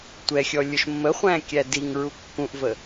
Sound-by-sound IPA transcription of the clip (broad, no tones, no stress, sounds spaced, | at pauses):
tʷ ɛ xʲ ɔ lʲ ʊ ʃ mː ə χʷ æ̃ kʲ æ d i ŋ ɹ u kː ũ ʔ v ə